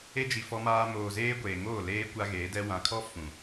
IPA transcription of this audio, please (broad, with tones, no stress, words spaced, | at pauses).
e˦d͡ʒi˨ fɔ˦maː˦ moː˨zeː˦ ɡʷeː˨ŋoː˦˨ leː˦ kʷa˦ɣeː˨˦dɛ˦ wã˨kʰɔ˦ fũ˨